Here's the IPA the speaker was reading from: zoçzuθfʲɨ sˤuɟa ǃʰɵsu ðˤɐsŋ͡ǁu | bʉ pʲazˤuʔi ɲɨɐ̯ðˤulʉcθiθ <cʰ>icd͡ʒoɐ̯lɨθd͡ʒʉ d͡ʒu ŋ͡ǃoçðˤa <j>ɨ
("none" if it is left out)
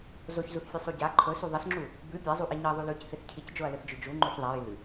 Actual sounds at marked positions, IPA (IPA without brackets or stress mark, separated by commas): cʰ, j